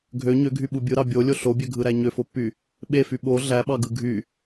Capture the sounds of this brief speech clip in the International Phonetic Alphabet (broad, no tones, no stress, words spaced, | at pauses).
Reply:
ɡʱø ɲøɡʱyɓu bʲɯɾɑ bʲolʲo ɬobʲøɡʱɯɾæ ɲøfopːy | ɓefy ɓo ɮæɓɑɡɯ ɡʱy